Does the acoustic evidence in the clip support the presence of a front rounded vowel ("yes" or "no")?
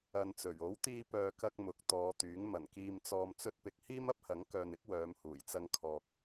yes